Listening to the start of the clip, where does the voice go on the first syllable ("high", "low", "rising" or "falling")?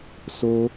high